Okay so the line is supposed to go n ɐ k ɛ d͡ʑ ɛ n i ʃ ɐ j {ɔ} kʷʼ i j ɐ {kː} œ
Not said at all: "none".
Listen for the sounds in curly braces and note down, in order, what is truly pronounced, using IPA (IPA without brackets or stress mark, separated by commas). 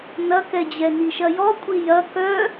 ɔ, k